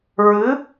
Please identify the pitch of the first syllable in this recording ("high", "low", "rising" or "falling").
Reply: rising